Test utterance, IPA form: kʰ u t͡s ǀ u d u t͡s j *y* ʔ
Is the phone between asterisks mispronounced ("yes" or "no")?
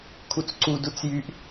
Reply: no